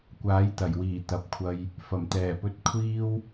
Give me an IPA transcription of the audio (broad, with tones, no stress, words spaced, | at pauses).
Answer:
kʷaː˨˥jt̪ɐ˨˩jwiː˨˩ t̪ɐ˨p̚kʷʰɐ˧j | fɐ˨˩mt̪ɛː˨˩pɵ˧t̚ kʷʰiː˥w